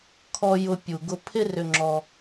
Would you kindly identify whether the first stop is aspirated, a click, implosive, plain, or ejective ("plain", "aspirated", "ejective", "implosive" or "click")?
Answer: aspirated